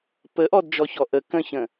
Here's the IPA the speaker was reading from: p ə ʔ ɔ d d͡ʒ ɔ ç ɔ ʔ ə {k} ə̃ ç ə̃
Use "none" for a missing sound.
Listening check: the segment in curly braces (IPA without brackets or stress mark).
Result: k